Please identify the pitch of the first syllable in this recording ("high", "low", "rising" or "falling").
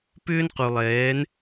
high